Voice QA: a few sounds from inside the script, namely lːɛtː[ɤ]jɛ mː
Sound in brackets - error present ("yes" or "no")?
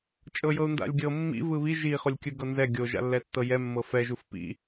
no